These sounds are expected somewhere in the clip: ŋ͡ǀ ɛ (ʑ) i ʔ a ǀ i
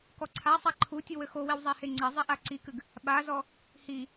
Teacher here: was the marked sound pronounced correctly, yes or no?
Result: no